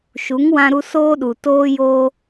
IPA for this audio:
ʃ u˨˦ ŋ w ã˧ ɾ u˧ s oː˧ ɗ u˨ t oː˧ j oː˧

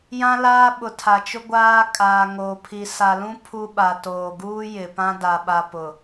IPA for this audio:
j ã˦ l aː˦ ɓ ʊ˨ tʰ a˨ t͡ʃ ʊ˦ ɡʷ aː˦ kʼ aː˨ ŋ o˨ pʰ i˨ s a˨ l ũ˦ pʰ u˦ ɓ a˨ t oː˨ ɡ uː˦ j ɪ˨ p ã˦ d a˦ ɓ a˦ p ʊ˨

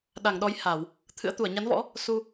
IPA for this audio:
ɗ a˧˩ ŋ ɗ ɔ˨˦ j h a˧˩˨ w | t̪ʰ ɨ̰˧˥ ə̯ t̪ u˧˩ ə̯ ɲ a˨˦ n v ɔ̰˧˥ | s u˧

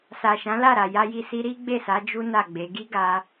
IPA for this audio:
s a˨ ʃ ã˨˦ l a˦˨ ɾ a˨ j a˧ j i˧ s i˧ ɾ i˦ ɡ͡b e˦˨ s a˨˦ d͡ʒ u˦ n a˦˨ ɡ͡b e˨˦ ɡ i˦ ɡ a˧

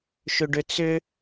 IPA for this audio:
ʃ ʏ ɖ ʏ t͡s ʏ

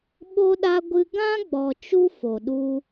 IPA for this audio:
ɓ o˧ ɗ a˧ ɡʷ ɨ˧ ɡ ã˦ ɡ͡b ɔ˨ t͡ʃ u˦ f o˨ ɗ u˧

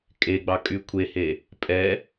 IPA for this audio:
kʼ e ɡ͡b ɑ kʼ y kʷʰ e h e | pʼ ɛ

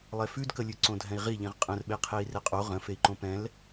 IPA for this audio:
lˠ ɛ f ʉ d k ə lʲ ʉ ǀ õ dʱ ɛ̃ i̯ ʁ i ʎ ĩ ʁ qʼ ə̃ r ɓ e qʰ e i̯ r e qʼ o ʁ ə̃ f e i̯ ǃ õ p ɛ̃ l

